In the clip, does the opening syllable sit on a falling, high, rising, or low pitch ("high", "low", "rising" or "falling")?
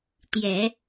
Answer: low